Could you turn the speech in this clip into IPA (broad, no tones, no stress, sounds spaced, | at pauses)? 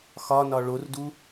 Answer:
x ɒ n ɒ ɭ o r d u